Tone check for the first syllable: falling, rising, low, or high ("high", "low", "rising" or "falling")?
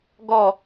falling